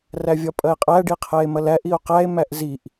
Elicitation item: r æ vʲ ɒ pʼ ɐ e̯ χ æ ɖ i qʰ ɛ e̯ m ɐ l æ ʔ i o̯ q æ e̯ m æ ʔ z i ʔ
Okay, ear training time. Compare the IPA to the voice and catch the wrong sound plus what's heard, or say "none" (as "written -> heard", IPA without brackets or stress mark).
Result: χ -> qʼ